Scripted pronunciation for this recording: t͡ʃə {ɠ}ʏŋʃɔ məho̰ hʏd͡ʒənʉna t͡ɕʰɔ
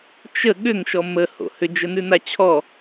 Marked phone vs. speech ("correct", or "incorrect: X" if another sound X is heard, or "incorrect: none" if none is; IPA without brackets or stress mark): correct